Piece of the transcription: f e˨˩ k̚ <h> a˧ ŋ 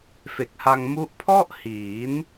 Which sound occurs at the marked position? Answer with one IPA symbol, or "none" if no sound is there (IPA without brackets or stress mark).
h